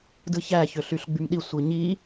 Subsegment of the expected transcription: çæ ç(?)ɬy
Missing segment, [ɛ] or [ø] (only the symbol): ø